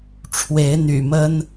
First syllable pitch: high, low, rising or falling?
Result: rising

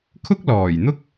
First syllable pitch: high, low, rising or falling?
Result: high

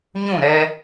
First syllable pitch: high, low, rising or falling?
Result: falling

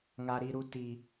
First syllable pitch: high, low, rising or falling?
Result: low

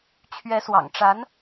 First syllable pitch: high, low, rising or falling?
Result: rising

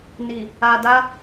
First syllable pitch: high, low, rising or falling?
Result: low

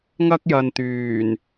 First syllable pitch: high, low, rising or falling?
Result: high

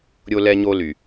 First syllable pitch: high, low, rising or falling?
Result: high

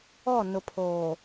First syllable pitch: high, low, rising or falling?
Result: falling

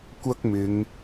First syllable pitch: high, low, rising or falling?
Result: high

